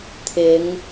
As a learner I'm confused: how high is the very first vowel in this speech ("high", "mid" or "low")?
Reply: high